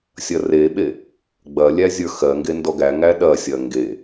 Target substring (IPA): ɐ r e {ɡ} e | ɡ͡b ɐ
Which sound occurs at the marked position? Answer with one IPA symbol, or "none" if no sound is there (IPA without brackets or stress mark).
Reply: ɓ